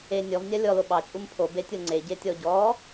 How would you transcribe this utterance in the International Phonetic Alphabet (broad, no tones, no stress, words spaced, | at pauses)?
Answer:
e nʲɔvnʲa lʲɔlo ɓɑt͡ʃʼum pʰobetʲɤ ŋ͡ǀeɟetʲɔ ɟɔ